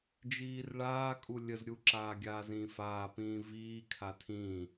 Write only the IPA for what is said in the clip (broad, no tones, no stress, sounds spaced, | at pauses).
d͡ʒ iː r ɭ aː kʼ u lʲ ə z ɾʲ u ǁ aː ɡʲ aː z ĩː f aː p ĩː v iː kʰ a tʰ ĩː